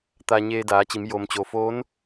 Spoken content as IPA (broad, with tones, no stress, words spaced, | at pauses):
t̪aː˧ɲeː˧daː˩˧t͡ɕi˩˧m jo˩mt͡ɕo˩foː˧˥n